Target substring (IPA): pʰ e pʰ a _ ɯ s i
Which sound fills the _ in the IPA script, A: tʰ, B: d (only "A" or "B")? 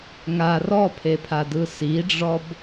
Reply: B